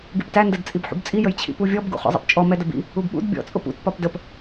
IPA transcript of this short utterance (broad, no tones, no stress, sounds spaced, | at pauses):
ɡ i p t æ n d ɜ d t͡sʼ i b ħ ṵ b t͡sʼ i j ə j t͡ɕʰ ḭ p u vʲ ɔ b ɡ ṵ χ ɔ̰ zˤ ɛ̰ p t͡ʃʼ ɔ m ɛ d ə b ḭ | u b ɓ ṵ d bʲ ɔ̰ t͡sʼ ʊ p ṵ t p ɒ p d ə p